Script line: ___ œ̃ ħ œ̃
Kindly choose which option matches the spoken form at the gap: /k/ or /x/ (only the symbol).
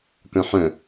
k